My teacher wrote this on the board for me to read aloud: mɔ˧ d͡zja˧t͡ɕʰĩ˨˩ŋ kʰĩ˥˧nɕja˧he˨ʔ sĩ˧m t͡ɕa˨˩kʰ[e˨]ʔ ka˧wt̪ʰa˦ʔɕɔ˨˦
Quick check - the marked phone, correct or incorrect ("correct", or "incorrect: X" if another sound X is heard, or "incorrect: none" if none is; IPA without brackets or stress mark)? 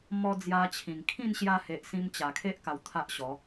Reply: incorrect: e˦